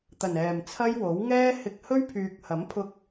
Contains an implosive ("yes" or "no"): no